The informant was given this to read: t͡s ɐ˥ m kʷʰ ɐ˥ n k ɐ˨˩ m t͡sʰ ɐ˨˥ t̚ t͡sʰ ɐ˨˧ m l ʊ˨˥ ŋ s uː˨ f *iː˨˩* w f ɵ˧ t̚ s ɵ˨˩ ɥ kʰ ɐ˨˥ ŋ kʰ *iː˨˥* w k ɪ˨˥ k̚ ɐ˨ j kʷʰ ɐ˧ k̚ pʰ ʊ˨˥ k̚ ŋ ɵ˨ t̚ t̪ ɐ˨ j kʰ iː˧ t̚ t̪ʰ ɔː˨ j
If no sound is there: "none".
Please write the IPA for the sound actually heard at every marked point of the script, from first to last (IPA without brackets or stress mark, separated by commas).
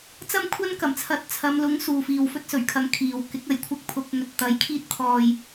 iː˨, iː˨